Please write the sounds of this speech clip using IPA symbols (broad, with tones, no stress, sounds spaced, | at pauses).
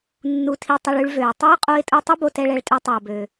nː u˧ tʰ i˧ tˤ œ˧ ɭ y˧ ɭ v ø˩ ɪ̯ tˤ ø˥ ʊ̯ qʼ o˧ ɪ̯ tʼ u˧ tˤ œ˥ b o˧ t ɛ˧ ɭ ɛ˧ ɭ tʼ ø˧ tˤ œ˩ ʊ̯ b ø˩